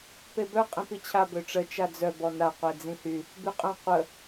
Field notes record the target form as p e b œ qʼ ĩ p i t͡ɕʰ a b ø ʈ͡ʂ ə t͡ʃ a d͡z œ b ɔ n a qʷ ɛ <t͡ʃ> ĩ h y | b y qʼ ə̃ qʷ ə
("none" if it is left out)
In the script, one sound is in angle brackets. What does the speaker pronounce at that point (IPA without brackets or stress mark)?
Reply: d͡z